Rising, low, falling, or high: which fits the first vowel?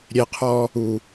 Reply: low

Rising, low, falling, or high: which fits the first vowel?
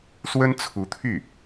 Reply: high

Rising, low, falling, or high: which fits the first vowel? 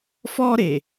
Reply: high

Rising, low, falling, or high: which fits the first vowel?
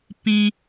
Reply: low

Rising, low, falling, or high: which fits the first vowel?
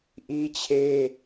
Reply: high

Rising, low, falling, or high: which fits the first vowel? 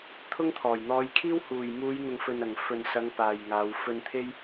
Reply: high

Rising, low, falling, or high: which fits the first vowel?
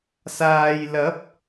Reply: low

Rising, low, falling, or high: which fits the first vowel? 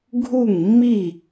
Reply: falling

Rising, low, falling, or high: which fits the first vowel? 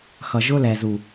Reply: low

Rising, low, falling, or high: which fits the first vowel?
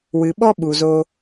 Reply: low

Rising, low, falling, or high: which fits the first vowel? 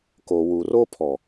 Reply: low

